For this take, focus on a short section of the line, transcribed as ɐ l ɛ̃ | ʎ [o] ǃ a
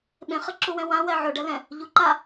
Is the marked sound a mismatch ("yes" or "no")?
yes